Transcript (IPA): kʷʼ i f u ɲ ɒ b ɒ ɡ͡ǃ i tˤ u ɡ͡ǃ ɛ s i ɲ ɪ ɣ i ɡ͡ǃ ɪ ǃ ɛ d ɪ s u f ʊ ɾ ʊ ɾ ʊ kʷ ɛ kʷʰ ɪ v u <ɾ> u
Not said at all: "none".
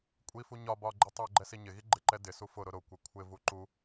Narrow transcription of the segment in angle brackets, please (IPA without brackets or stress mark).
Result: ǃ